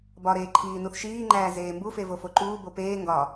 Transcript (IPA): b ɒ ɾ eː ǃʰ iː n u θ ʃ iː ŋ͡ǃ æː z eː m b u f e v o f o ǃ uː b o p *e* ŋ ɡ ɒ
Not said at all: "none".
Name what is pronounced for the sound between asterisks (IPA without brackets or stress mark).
eː